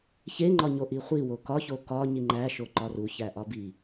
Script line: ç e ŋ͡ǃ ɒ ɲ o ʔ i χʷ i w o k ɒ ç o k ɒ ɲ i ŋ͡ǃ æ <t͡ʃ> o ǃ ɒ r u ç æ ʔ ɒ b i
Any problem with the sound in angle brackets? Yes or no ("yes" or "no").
yes